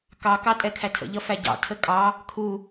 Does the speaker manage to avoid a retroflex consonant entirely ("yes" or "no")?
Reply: yes